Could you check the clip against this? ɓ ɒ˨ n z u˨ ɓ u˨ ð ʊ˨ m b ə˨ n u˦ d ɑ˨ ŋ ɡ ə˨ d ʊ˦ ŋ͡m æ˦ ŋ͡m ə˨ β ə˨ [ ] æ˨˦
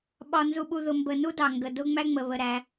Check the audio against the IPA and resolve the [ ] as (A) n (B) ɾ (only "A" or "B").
B